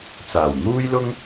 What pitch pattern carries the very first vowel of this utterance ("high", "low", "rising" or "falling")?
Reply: low